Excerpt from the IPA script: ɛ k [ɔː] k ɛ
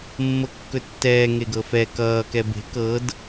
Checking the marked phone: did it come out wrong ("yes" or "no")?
yes